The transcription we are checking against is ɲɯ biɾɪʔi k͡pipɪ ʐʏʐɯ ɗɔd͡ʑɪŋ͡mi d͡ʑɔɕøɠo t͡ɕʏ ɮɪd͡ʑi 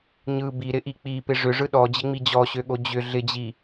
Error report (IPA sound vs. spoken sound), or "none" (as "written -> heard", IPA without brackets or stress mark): t͡ɕ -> d͡ʑ